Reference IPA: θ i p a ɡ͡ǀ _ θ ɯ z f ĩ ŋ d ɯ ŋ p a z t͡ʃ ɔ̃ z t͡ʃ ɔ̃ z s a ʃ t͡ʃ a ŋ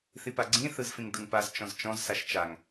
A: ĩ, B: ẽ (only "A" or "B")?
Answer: A